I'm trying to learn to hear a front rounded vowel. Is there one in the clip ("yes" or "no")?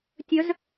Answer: yes